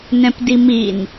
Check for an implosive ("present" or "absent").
absent